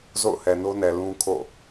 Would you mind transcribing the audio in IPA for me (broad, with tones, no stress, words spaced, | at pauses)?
zo̰˦˨ʊ̯hɛ˨no˦nɛ˨ lũ˦kʰo̰˦˨